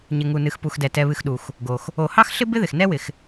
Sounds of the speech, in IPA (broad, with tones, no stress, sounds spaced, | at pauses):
ɲ ɪ˩ ŋ u˩ n ɨ˩ x p u˩ x d ɛ˩ t ɛ˩ β ɨ˩ x ɗ u˩ x | ɡ o˩ x | o˩ h ɑ˥ x ɬ ɪ˥ b ɪ˥ ð ɪ˩ x n ɛ˥ w ɪ˩ x